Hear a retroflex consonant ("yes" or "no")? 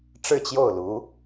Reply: yes